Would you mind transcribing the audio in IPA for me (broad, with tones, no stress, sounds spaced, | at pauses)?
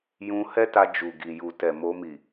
j ũ˧ h ɛ˦ t a˧ d͡ʒ u˨ ɡ i˨ j u˨ t ɛ˨ m o˧ m i˨